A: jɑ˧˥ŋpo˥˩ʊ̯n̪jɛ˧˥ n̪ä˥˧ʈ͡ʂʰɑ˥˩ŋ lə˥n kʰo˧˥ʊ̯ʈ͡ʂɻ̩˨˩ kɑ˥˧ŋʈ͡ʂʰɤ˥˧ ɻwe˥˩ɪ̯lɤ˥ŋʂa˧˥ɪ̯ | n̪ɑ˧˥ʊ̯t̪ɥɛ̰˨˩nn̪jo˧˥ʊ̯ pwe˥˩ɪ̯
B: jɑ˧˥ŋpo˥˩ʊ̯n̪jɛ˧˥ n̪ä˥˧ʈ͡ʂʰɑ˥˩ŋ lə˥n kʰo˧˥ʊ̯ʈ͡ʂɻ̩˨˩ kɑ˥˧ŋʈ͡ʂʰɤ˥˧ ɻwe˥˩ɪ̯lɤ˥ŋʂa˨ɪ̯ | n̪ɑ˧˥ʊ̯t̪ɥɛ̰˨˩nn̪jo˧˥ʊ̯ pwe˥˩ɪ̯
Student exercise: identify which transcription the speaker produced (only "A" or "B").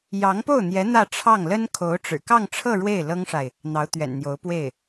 B